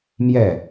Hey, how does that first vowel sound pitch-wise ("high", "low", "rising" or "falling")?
falling